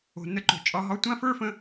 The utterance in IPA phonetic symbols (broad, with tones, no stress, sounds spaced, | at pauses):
o̤˨ n ə˧ ǃ o̤˨ t͡ʃʼ ɒ˧ ɦ ɒ˧ tʷ ã˦ f ə˞˦ f ə̃˧